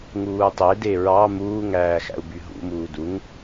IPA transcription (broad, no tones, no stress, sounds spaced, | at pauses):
ŋ uː tˤ e d e ɹ ɑ m uː ŋ æː x æ̰ u̯ b y ɦ ṵ m uː d u ŋ